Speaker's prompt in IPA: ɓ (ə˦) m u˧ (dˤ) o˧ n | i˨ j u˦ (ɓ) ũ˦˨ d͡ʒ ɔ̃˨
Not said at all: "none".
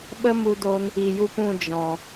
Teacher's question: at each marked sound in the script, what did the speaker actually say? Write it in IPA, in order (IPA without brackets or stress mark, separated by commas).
ə˦, d, p